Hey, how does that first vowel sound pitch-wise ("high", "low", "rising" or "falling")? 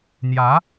rising